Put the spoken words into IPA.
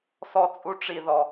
s ɔ˦ t͡sʼ u˦ ʈ͡ʂ i˧ ð ɔ˨

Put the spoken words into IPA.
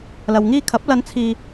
l ɐ˨ w ŋ iː˧ kʰ ɐ˨˥ p̚ l ɐ˧ n t͡sʰ iː˧

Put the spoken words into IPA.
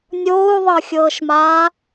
nʲ oː u̯ ðˤ ɤ xʲ ɤː ʃ m aː

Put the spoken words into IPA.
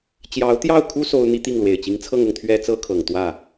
t͡ɕ j ɑ˧˥ ʊ̯ t̪ j ɑ˥˩ ʊ̯ kʰ u˥ s o˥ ʊ̯ n̪ i˥ t̪ i˥˩ ŋ l w e˨˩ ɪ̯ t͡ɕ i˧˥ ŋ t͡sʰ ɤ˥˧ ŋ ʊ˥˩ ŋ t̪ʰ ɥ ɛ˥ t͡s ɤ˥ kʰ ɤ˨˩ ŋ t̪ w ä˥˩

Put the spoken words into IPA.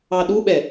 ɑ ɗ u ɓ ɛ

